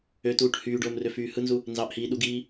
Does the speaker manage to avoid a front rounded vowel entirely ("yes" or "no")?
no